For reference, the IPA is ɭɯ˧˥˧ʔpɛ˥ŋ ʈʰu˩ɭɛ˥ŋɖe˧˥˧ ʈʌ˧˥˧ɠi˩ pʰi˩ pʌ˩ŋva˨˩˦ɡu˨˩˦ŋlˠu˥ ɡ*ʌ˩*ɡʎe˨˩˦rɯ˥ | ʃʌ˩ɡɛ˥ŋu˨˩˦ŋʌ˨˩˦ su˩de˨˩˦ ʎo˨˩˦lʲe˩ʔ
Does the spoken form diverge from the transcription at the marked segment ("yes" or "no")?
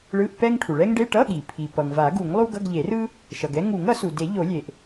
yes